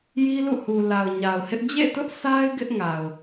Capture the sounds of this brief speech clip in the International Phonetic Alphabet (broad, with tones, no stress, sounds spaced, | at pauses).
j i˦ l ṵ˦˨ h u˨ l a˨ ʊ̯ ɲ a˨ ʊ̯ h ɪ˦ ʔ d͡ʑ ḛ˦˨ t ʊ˦ ʔ s a˦ ɪ̯ ɡ ɪ˦ ʔ ŋ a˨ ʊ̯